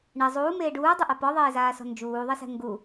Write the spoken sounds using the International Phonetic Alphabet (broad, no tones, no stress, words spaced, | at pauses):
ɳɛ zˤuːmeː ɖuːdˤuʔa pɔðˤeːzaːsɔ̤ nd͡ʒuːðˤisɛ̤ ŋɡu